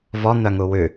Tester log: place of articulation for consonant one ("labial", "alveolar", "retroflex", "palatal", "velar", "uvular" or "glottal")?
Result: labial